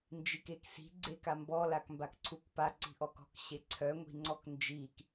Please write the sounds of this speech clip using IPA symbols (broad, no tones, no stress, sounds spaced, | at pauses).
n d͡ʒ i k e k s i̤ ɡ͡ǀ e k a m b ɔ l a k m b a k ǀʰ u k p a ǀ i̤ ʔ ɔ k ɔ̤ k ɕ e ǀʰ œ ŋʷ i̤ ŋ͡ǀ ɔ k n d͡ʒ i k